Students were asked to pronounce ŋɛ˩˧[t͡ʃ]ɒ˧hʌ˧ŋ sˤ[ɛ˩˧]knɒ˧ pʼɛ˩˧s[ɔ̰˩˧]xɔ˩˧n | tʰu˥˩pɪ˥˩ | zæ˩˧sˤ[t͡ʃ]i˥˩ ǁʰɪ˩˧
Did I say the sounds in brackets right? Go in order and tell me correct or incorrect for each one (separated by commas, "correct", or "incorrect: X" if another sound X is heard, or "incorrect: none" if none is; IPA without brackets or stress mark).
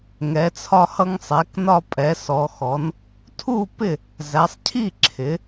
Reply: incorrect: t͡sʰ, correct, incorrect: ɔ˩˧, incorrect: cʰ